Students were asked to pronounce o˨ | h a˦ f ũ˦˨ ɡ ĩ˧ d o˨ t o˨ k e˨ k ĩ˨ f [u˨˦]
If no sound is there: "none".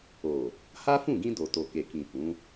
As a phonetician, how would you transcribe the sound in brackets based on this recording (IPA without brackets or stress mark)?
ũ˨˦